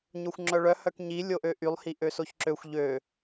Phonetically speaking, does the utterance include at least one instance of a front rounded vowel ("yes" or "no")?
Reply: yes